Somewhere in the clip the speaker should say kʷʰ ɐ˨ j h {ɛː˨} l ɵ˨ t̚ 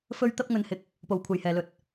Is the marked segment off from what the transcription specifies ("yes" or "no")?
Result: no